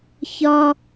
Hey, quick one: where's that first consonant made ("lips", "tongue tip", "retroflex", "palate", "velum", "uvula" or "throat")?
palate